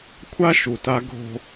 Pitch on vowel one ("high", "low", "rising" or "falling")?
high